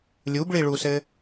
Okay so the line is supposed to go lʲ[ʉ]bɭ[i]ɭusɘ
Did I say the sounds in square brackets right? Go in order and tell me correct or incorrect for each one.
incorrect, correct

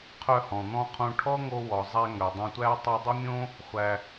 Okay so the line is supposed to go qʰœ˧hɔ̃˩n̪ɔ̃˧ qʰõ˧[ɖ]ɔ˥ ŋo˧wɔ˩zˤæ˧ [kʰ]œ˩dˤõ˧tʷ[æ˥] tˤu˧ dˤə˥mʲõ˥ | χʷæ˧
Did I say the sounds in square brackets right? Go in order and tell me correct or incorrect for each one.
incorrect, incorrect, correct

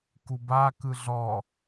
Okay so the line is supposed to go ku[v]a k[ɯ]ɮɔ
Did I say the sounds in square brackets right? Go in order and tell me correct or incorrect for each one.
incorrect, correct

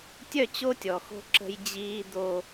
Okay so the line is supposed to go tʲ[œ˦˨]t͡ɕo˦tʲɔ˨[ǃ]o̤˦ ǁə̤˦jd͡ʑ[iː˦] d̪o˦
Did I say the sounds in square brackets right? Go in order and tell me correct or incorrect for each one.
correct, incorrect, correct

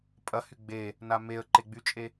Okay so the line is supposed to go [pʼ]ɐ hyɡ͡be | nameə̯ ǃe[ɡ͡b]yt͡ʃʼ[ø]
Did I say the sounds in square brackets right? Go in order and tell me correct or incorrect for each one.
correct, correct, incorrect

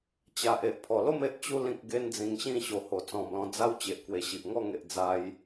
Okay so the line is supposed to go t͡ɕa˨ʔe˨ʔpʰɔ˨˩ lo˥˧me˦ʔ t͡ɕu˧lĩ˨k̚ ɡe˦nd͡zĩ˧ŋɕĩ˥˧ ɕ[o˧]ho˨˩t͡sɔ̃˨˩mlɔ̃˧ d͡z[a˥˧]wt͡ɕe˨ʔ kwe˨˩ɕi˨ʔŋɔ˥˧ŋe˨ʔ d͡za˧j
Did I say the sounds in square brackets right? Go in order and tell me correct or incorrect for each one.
incorrect, incorrect

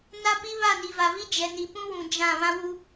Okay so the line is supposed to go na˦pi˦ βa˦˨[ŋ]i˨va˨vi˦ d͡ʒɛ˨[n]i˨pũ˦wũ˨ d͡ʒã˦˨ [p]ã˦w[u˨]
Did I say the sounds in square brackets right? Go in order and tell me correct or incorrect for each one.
incorrect, correct, incorrect, incorrect

